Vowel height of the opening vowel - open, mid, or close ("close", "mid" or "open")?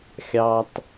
open